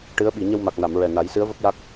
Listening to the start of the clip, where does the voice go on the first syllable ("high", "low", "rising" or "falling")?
rising